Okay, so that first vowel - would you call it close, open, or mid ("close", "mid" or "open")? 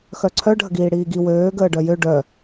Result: mid